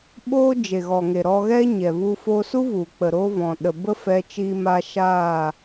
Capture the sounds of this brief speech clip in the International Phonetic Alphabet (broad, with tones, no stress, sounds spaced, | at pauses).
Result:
ɓ oː˦ d͡ʒ e˨ ɣ ɔ˨ ŋ e˨ ɾ ɔ˧ ɣ ɛ˦ ɲ ɛ˨ v u˧ f oː˧ s u˦ v u˨ k͡p ə˨ ɾ o˦ v ɔ̃˨ ɗ ə˨ b ə˦ f ɛ˧ t͡ʃ iː˧ m a˧ ʃ aː˦˨